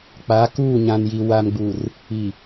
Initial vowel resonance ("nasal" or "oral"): oral